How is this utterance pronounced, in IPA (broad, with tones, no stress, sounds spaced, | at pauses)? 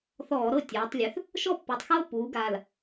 θ ɔː˧˩˧ ɾ ɤ˥˩ tʲ aː˩˧ tˤ lʲ ø˩˧ θ | ʃ ɔ˥˩ pː u˨˩ tˤ x ɤː˦ p uː˩˧ ɡ aː˨˩ l